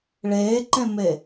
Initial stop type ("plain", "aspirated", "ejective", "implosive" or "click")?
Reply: click